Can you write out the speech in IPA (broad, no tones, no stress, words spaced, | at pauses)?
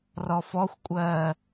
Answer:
rɔfɔxʷkʷʼɜː